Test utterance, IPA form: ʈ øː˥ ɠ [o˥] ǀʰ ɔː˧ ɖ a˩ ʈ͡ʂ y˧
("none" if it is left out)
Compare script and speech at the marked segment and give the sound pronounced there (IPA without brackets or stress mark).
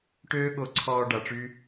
o˧